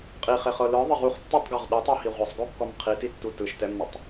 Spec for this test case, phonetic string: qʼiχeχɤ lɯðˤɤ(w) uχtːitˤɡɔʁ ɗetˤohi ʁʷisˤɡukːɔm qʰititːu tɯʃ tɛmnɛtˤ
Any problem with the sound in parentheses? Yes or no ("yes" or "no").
yes